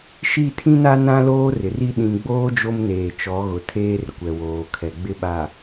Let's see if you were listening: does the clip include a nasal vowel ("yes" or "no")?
yes